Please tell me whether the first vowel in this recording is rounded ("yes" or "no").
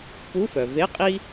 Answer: yes